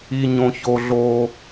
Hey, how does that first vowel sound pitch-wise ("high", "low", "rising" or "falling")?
high